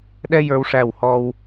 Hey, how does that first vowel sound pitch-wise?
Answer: high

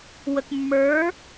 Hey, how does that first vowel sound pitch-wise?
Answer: low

